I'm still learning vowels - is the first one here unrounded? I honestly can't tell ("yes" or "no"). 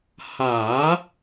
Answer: yes